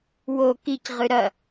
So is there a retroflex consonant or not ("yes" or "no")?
no